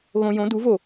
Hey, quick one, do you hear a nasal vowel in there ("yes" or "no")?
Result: yes